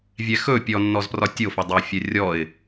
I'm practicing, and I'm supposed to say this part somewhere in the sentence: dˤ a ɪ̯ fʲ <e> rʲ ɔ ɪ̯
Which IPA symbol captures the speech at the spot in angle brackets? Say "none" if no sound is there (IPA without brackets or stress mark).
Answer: ɛ